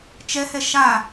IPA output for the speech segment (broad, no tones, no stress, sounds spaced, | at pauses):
t͡ʃ ɛ h ɛ ʃ a